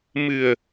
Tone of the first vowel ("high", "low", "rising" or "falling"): low